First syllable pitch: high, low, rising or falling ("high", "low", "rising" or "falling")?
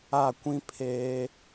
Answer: falling